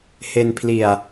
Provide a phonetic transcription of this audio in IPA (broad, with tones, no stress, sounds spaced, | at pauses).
h e˧ n pʰ l i˨˩ a̯